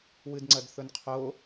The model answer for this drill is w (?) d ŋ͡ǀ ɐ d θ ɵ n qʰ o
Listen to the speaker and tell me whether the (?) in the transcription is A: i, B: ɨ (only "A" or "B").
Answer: B